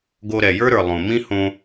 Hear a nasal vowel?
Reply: yes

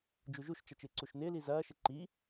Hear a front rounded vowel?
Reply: no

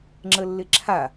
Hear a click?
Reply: yes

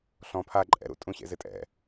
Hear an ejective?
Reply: yes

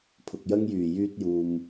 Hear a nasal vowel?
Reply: no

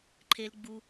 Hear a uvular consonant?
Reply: no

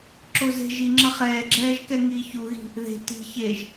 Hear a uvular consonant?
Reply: yes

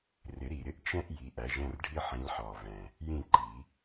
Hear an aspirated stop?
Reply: no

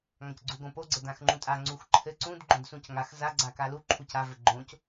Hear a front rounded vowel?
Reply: no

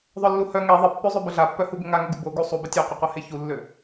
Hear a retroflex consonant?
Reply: no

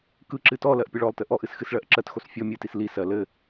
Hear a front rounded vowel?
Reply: no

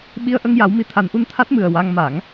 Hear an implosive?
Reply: yes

